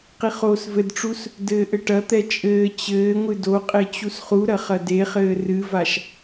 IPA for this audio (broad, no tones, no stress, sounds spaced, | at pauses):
q i χ oː s v ɘ d ʈ͡ʂ u s | d ɘː ʔ ɘ ʈ ɐ t̪ ɛ t͡ʃʼ ɘː t͡ɕ ɘː ŋʷ ɨ d o qʼ e t͡ɕ u s χ u ɾ ɐ χ ɐ d e χ ɘː r ɨ v a ʃ